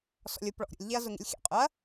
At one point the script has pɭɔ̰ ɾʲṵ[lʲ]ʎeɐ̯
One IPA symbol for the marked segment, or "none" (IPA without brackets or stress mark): lʲ